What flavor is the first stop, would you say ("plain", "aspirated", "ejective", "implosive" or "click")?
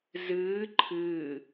click